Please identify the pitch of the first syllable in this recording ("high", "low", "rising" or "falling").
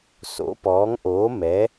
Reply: rising